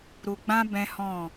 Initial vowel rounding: rounded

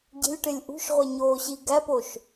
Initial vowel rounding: unrounded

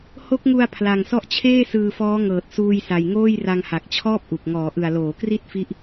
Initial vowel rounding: rounded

